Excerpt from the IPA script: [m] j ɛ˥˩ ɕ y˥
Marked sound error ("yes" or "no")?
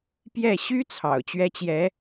yes